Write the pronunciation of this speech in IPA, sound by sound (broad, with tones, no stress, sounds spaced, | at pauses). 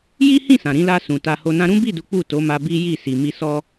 j i˦ h ĩ˦˨ s ã˨ ɾ ĩ˧ l a˧ s ũ˨ t a˧ h o˧ n ã˦ ɾ ũ˦ b i˦˨ d u˨˦ k͡p u˦˨ t o˨˦ m a˧ b i˦ j i˦˨ s i˨ m i˧ s ɔ˧